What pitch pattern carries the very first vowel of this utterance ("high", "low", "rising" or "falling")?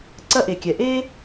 high